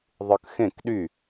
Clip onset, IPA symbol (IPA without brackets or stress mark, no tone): ðˤ